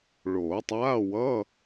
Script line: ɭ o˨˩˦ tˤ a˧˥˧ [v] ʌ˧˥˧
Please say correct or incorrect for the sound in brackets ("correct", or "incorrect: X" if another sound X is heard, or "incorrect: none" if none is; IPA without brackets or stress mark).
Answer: incorrect: w